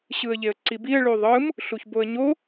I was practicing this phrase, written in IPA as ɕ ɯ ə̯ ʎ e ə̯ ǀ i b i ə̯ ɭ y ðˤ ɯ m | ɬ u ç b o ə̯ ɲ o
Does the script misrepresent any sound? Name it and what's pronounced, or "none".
none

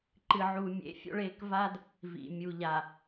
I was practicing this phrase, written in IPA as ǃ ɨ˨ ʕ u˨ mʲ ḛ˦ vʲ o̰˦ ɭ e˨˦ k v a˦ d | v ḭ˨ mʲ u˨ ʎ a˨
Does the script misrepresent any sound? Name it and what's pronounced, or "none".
vʲ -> fʲ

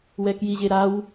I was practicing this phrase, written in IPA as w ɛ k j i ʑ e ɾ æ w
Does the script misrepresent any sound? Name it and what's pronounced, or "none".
æ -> a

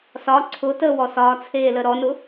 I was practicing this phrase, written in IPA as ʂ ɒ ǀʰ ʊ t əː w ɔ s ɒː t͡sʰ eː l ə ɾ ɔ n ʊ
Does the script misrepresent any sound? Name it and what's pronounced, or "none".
ʂ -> s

